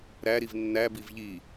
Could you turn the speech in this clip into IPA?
ɾ æ ɾ i v nː æ b i v ʎ i

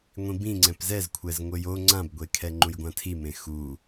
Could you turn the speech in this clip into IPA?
ŋʷ ĩ b ĩ ŋ͡ǀ ɛ̃ p z ɛ z kʷʰ ɛ z ŋʷ ɘ j o ŋ͡ǀ ã b ɡʷ e kʰ ɛ ŋ͡ǃ ũ j ɡʷ ã tʰ i m ẽ x u

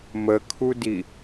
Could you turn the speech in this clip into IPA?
m ə kʰ u d i

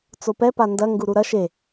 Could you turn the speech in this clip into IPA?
t͡s o p ɛ p a n d ɐ ŋ ɡ u ɾ u ɾ ɐ ʃ e

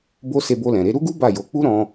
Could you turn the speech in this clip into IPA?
b o˦ s e˧ b o˧ l ɛ̃˨ ɾ e˨˦ ɾ u˦ ɡ u˦ b a˦˨ j o˨˦ k͡p u˦ ɾ ɔ̃˧

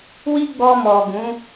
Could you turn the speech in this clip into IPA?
w i˦ ɡ͡b ɔ˧ m ɔ˨ ɡ ũ˨˦

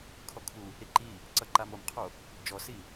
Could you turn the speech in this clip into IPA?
kʰ ɔ kʰ u | ɾ i ǃ i | ǀ ʌ ǃ a m o m qʰ o | d͡ʒ ɔ s i

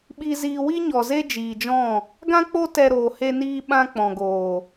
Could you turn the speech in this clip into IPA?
ɓ i˧ z iː˧ w i˦ ɲ ɔ˨ z e˦ d͡ʒ iː˨ d͡ʒ ɔ̃˦˨ | ɡ ã˦ k͡p o˦ t ɛ˧ ɾ oː˨ h e˧ n iː˧ ɓ ã˧ k͡p ɔ̃˨ ɡ oː˨

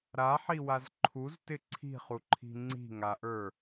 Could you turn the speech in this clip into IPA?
ɾ a ħ i w a z ǃʰ u z t ɪ ǀʰ i̤ χ u ǃʰ i̤ ŋ͡ǀ i̤ ŋ a ʔ ə˞

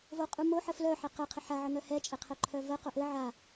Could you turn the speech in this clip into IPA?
v o qʼ u m o ħ ə f l œ ħ ɛ q ə qʰ ə ħ a ʕ ɘ ŋ œ h ɛ t͡ʃʼ ɛ qʰ œ ǃʰ œ v ə q o ʔ ɘ ʕ a

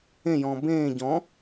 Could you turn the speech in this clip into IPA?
ẽ j ɔ̃ː b ẽː ɟ ɔ̃

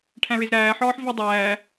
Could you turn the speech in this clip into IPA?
ʈʰ æ̃ ɹ e z ɾ æː ħ ɒː ħ v i dˤ æː

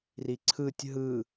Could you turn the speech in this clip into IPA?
r i ǀʰ ɯ tʲ ɦ ɯ

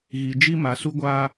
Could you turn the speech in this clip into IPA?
ɣ i˨ d͡ʒ i˦ m a˨ s u˦ ɡʷ aː˦

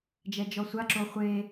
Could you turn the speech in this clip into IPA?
d͡ʒ ɛ d͡ʒ ɔ sʷ a ǁ o χʷ e

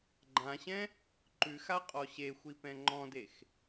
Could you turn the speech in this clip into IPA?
ɡ͡ǃ ã ɕ ɛ̃ | ǃ ʉ x a qʼ ɔ ɕ e xʷ i p ɛ̃ ŋ͡ǃ ɔ̃ d e x

